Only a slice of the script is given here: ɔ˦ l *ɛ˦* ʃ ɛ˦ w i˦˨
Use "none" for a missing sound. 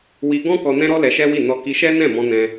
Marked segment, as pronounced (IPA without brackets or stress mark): ɛ˧